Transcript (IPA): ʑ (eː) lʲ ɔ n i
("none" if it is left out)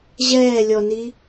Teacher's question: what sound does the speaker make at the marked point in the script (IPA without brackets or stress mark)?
ɛː